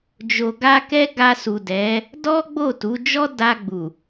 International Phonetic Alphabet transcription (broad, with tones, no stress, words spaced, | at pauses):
d͡ʒo˨ɡa˧ kɛ˦ɡa˧su˨dɛ˨˦ | dɔ˦ɡ͡bo˦˨tu˨˦ d͡ʒɔ˦da˧ɡ͡bu˨